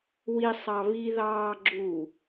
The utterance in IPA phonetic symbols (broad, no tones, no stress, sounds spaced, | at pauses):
w i sˤ ɑ β i ð ɑː ɡ͡ǁ u